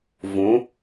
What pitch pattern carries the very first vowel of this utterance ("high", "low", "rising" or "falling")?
rising